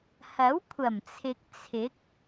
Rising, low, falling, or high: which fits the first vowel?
rising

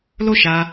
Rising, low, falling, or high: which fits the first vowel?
high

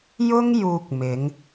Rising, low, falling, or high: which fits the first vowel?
high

